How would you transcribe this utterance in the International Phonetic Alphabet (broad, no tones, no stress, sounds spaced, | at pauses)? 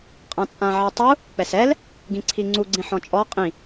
qʼ ã t͡sʼ ã ʕ e tˤ u | k͡p ɛ s ɛ l | ɡ ĩ ǀʰ i ŋ͡ǀ u ɡ͡ǀ ĩ ħ ɔ̃ t͡ʃʼ ɔ qʼ ĩ